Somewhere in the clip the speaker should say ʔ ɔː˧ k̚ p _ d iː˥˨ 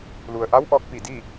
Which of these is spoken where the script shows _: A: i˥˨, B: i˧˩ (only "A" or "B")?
B